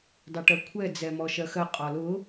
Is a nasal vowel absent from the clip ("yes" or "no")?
yes